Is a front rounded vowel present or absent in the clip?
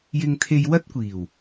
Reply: absent